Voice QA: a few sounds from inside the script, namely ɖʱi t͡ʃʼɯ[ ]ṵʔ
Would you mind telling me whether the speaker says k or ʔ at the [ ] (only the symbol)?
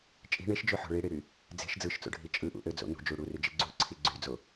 ʔ